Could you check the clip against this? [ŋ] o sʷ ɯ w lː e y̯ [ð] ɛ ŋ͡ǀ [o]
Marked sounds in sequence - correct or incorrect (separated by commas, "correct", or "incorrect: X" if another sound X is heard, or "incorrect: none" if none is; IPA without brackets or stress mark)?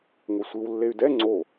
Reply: correct, incorrect: d, correct